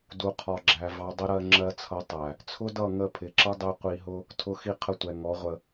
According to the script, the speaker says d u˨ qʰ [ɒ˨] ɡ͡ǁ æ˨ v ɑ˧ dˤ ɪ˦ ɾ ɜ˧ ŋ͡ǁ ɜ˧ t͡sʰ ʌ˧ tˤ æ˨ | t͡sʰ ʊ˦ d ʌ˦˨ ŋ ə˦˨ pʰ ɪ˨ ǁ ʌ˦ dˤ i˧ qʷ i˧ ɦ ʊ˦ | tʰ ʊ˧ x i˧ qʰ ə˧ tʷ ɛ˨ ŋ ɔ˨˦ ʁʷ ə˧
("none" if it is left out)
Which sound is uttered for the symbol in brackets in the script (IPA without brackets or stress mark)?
ɒ˨